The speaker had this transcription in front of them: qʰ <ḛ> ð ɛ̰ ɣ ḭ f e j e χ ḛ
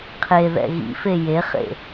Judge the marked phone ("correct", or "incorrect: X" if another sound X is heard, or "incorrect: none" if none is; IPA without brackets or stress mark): incorrect: e